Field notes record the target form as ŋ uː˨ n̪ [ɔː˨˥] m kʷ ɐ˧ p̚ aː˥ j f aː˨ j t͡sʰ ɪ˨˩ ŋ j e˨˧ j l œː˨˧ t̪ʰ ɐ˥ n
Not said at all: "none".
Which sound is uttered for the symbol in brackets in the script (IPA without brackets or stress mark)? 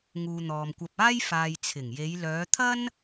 ɔː˨